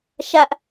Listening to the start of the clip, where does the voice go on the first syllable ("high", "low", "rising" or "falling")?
high